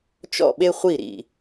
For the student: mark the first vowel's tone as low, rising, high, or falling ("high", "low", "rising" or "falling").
falling